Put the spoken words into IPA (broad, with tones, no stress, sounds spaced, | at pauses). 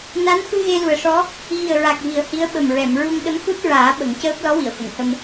n a˧˥ n f ɨ˧ ɣ e˧ l u˨˩ ə̯ ʂ ɔ˧˥ | ɣ i˨˩ ə̯ ɹ a˨˩ k̚ v i˨˩ ə̯ h i˧˥ ə̯ ɓ ə˨˩ m ɹ ɛ˨˩˨ m ɹ u˧ ŋ ɗ ə˧˥ m x u˦˥ t̚ ɹ aː˨˩˦ ɓ ə˨˩˦ ŋ c əː˦˥ p̚ l ɔ˧˥ w i˨˩˨ ə̯ f ə˨˩˨ ŋ h ə˧ m